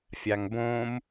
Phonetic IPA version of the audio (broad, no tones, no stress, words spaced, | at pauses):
fʲaŋbõm